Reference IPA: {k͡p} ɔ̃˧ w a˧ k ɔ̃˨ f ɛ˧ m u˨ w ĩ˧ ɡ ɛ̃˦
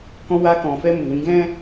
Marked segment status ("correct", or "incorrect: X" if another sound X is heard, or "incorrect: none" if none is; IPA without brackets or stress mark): incorrect: k